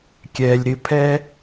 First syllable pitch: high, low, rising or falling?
low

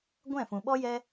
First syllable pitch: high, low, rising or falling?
falling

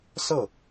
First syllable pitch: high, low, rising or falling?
falling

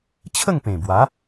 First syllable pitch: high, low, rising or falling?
falling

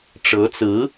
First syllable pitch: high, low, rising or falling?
rising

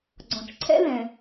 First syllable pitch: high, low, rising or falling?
low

